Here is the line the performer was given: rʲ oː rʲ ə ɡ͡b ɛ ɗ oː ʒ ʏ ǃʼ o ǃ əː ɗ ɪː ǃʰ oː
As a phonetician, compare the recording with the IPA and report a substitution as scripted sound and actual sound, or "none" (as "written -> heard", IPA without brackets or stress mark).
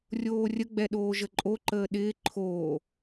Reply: ʏ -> ə